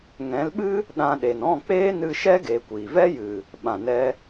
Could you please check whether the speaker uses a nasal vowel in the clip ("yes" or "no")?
yes